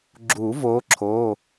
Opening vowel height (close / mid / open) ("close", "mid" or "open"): close